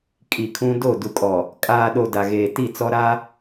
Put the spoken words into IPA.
kʼ i˨ kʰ ũ˦ d o˦˨ d u˨ kʼ ɔ˨ | kʼ aː˨ ɗ o˨ d a˨ ɣ eː˨ t i˦˨ t͡s ɔ˦ ɾ a˦

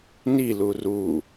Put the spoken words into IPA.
n i l u r u

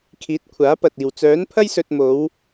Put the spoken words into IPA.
kʰ iː˨˥ t̚ kʷʰ aː˨˥ p ɐ˨ t̚ iː˨ w t͡s œː˨˥ n pʰ ɐ˥ j s ɵ˧ t̚ m o˨˧ w

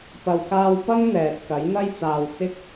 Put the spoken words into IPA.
p ɐ˨ w k aː˧ w p ɐ˥ ŋ n̪ ɛː˨ t̚ k ɐ˨˥ j n̪ ɐ˥ j t͡s aː˨ w t͡s ɪ˥ k̚

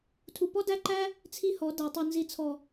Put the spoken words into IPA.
tʰ u˨ p ɔ˦ d æ˦ ǃ æ˦ | t͡sʰ i˦ h ɔ˨˦ d æ˨ tˤ u˨ n z i˨ t͡sʰ ɔ˨

